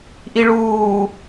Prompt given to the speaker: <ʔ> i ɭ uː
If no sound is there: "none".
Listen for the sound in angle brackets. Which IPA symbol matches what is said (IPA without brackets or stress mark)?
ʔ